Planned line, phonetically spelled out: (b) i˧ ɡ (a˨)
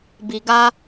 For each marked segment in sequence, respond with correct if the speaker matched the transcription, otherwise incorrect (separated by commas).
correct, incorrect